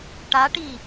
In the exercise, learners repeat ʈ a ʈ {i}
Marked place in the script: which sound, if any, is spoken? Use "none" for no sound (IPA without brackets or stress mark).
i